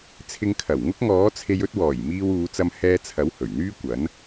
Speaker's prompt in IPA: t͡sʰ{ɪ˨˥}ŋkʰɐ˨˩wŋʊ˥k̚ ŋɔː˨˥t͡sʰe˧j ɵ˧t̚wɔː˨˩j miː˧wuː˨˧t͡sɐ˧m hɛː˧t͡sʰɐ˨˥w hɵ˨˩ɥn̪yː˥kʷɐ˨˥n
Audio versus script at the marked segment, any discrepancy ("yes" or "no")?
yes